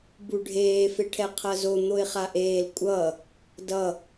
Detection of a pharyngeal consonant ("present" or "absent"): absent